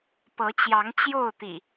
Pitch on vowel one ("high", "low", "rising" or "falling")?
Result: rising